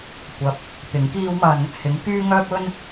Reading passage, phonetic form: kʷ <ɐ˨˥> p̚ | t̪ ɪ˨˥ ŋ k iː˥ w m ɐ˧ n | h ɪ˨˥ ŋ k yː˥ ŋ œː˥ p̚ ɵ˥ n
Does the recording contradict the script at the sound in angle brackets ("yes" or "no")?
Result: no